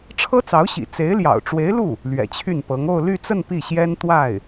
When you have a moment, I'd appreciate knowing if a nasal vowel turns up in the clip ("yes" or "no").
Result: no